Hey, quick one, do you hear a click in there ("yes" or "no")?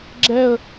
yes